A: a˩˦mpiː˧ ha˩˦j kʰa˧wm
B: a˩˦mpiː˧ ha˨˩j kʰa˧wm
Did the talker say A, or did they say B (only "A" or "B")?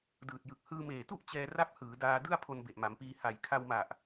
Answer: B